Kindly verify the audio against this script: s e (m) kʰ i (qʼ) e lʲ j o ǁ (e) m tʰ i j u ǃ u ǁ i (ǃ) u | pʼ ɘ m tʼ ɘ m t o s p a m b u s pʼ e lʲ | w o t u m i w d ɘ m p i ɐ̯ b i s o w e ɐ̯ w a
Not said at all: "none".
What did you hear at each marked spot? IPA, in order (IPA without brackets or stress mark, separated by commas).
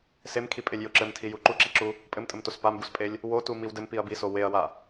m, pʼ, ɘ, ǁ